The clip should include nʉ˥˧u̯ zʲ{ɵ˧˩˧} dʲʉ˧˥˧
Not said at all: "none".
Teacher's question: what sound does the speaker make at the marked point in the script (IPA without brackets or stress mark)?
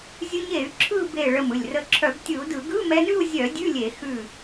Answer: œ˧˩˧